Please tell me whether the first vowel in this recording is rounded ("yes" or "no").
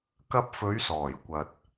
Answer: no